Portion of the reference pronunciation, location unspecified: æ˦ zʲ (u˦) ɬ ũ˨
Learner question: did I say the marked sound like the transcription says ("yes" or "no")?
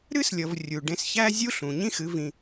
yes